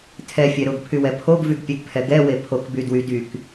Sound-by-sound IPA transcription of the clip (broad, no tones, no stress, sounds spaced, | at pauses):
tʰ ɛ fʲ ɛ ɾ ʊ ɡ pʰ y w ɛ pʰ o ɡ v y ɡ pʲ ɛ ɡ pʰ ɛ ɡ ɛ w e pʰ o k b y d w y d y k